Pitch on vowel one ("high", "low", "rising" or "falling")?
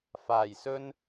low